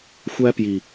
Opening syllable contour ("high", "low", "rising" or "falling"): high